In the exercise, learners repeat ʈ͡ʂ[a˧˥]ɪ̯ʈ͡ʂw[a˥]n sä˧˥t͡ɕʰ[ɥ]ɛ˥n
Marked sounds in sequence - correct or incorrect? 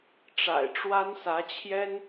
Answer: incorrect: a̰˨˩, correct, incorrect: j

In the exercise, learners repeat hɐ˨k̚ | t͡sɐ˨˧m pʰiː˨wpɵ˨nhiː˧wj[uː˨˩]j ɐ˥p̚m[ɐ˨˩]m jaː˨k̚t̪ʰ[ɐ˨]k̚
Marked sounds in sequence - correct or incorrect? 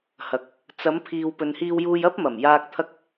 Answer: incorrect: uː˧, correct, incorrect: ɐ˧

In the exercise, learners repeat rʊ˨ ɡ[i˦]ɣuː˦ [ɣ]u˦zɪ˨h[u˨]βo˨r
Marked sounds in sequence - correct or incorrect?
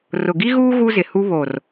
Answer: correct, correct, incorrect: u˦

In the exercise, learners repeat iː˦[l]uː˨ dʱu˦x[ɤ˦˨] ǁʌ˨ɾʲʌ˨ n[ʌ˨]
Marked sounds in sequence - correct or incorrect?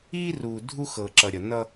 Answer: incorrect: r, incorrect: ɤ˨, incorrect: ʌ˦

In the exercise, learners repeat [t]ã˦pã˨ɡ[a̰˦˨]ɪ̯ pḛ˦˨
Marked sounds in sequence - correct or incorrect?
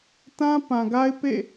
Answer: correct, incorrect: a˦

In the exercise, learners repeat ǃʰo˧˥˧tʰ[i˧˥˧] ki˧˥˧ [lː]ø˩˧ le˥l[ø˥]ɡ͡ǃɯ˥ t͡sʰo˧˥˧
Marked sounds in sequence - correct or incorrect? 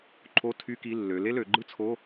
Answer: incorrect: y˧˥˧, correct, incorrect: ø˩˧

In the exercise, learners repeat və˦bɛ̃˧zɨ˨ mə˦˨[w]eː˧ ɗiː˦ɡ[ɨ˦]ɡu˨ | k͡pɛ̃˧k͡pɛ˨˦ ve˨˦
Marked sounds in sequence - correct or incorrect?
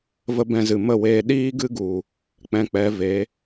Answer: correct, correct

